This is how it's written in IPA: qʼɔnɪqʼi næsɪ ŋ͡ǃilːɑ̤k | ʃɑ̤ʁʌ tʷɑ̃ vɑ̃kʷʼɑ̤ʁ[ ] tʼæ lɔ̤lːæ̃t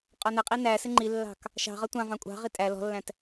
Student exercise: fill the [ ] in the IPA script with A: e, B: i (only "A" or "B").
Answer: B